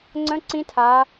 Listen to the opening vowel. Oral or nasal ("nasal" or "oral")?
nasal